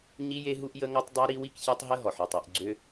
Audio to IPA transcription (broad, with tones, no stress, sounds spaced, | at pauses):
ɲ i˦ j e˦ ɦ u˦ ʔ j ə˦ ŋ ɔ˦ tˤ dˤ ɜ˦ ɾ i˦ w i˦ k ç ɜ˦ tˤ ɦ ə˦ ɦ ɔ˨ ħ ø˨ tˤ u˨ ʔ ɡ͡ǀ ø˦